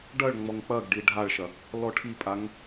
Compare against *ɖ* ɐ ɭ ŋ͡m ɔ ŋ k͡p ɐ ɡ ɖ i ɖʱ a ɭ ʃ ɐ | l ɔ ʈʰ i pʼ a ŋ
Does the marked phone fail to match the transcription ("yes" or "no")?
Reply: no